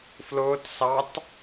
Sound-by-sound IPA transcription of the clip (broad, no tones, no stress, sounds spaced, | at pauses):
f l ʊː t s ɑ t